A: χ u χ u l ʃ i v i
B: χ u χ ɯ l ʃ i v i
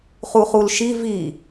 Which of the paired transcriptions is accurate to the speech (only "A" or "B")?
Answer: A